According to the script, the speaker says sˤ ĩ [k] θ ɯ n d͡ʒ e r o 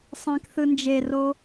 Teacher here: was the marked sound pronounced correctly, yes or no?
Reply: yes